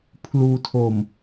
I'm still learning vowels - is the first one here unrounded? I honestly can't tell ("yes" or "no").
no